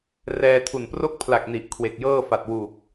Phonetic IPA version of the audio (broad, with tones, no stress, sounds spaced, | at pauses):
r ɛː˧ tʰ u˨˩ n p r o˥˩ k̚ pʰ l a˨˩ k̚ n i˨˩ ʔ kʰ w e˨˩ k̚ j ɤː˥˩ f a˨˩ t̚ w u˨˩ k̚